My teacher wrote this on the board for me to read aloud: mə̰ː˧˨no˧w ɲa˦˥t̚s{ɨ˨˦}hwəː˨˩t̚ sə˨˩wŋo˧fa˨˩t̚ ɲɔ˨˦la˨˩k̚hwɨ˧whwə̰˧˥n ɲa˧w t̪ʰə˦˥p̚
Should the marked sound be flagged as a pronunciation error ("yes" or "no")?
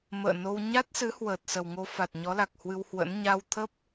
no